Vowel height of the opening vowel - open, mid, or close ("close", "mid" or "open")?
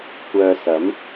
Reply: mid